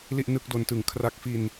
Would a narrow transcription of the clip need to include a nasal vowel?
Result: no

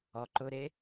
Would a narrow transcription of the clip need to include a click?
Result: yes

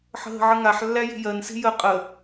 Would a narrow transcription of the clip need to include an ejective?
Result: yes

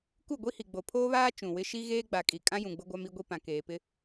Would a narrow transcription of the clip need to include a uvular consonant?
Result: no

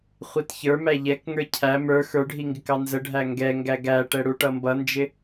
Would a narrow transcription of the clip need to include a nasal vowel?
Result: no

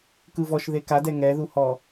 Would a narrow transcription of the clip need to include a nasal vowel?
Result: no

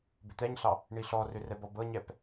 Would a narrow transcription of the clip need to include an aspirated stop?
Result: no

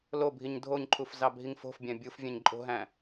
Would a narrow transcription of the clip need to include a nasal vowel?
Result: yes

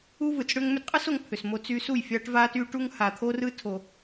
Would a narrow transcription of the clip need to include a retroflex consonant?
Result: yes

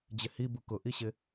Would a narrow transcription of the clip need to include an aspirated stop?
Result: no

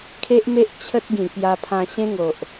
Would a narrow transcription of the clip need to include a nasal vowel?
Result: yes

